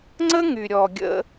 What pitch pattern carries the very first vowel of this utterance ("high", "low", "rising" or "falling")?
high